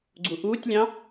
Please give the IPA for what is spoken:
ɡ͡ǀuʔuːtʲlʲɑ̃

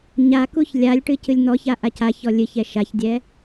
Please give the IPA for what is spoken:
ɲakuç lʲalʲʈɨ cɨlʲn̪ɔça ʔacaçɔ lʲɨçɛ ʃaçdʲɛ

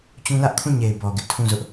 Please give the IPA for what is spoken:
t͡ɕũ˦ lä˦ʔkʰũ˦˨ɲe˨ɪ̯ bɔ˨ɡɪ˦ʔtʰũ˦˨zʊ˦ʔ

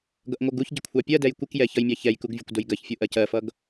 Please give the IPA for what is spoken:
ɡʌʔŋʷʌɡuçɟɪ kʷʰɑpʲɜdɛj kʷɪkjɛ çʌjmʲɑçɛjkuɡ vʲʊkʷdʊjɡɜçfʲu ʔɜcɜfʌɡ

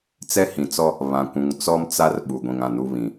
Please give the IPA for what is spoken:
t͡sɛ˦hĩ˨t͡sɔ˦ | βã˨kʷũ˨ŋt͡sɔ˦m t͡sa˦r ɓu˨ɡʷĩ˨ŋã˦˨nu˦ βĩ˨

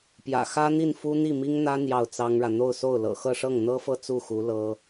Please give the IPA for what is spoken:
pjä̰˨˩ xä˥n̪i˥˩nfu˥n̪i˥˩ mi˥ŋn̪ä˥ n̪jɑ˥˩ʊ̯t͡sɑ˥ŋɻä˨ n̪o˥˧ʊ̯so˥˩ʊ̯lɤ̰˨˩ xɤ˥˧ʂɤ˥˩ŋn̪ɤ˥fɤ˥˧ t͡su˥˩xu˧˥ lɤ˥

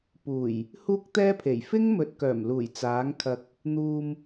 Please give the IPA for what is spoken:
puː˨˩j | huː˥k̚t̪ɛː˥pʰe˨˩j fɪ˥ŋmɵ˨t̚kœː˨˩mluː˨˩j t͡saː˨˥ŋkʰɐ˧k̚ | n̪uː˧m

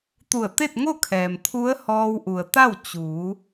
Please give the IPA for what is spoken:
t̪u˧˩ə̯t̪e˥˨t̚ŋo˥˨kʰɛː˩m t̪ʰu˧˥ə̯hɔː˧wʔu˩ə̯ t̪a˥˨w t͡ɕuː˩˧

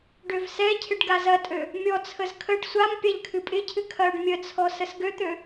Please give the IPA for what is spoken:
ɖøvsɛcʰɪɖ ɡazɐtʼø | mʲɔt͡sʰəz kʰəɖ sʷam pʲaʎkʰɨpʼɪcʰɨ kʰɐːɖmʲət͡sʰɔ səsɡøt̪ø

